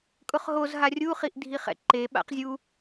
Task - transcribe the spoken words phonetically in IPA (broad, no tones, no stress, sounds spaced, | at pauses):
kʼ ʊ χ ɦ o z ɦ a rʲ u χ i ʔ dʱ i χ ɛ̰ ǃ e ɓ a̰ q zʲ u